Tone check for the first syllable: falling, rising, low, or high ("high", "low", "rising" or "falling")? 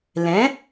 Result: rising